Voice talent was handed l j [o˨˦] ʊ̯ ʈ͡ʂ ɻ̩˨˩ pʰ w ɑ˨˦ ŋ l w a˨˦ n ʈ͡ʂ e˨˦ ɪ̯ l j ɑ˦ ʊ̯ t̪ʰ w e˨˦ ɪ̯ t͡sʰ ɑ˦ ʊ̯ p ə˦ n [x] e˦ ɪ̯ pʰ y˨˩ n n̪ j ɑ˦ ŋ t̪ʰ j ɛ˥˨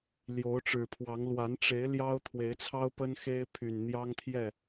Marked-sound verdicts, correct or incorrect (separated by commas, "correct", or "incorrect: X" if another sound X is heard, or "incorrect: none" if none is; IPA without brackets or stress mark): correct, correct